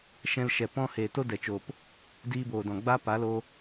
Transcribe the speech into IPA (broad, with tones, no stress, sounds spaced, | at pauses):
ʃ ɛ̃˧ l ʃ ɛ˨ p ɔ̃˧ h eː˨ t o˦ d ɛ˨ t͡ʃ oː˨ p | d iː˧ b oː˨ d ɔ̃˨ ɡ͡b a˦ p a˨˦ l oː˧